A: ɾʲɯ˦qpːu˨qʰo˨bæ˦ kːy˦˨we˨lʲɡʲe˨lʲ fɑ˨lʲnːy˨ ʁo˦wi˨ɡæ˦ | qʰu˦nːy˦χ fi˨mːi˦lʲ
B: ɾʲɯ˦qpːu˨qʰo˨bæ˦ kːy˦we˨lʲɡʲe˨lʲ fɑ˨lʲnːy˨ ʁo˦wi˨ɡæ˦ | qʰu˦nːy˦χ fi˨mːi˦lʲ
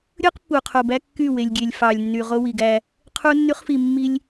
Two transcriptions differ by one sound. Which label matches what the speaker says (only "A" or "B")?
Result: A